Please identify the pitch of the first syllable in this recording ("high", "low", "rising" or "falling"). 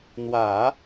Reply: low